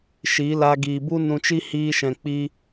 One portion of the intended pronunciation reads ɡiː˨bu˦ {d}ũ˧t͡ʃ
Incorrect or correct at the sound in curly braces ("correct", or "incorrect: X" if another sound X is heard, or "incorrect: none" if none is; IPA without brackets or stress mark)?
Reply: incorrect: n